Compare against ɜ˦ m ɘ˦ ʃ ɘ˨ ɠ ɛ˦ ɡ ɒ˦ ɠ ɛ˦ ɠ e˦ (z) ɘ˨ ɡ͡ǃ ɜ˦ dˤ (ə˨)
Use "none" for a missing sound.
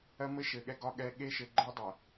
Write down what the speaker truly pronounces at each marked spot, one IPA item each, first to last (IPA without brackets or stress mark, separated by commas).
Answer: ʃ, ə˨